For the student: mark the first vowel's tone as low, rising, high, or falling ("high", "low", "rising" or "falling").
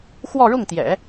falling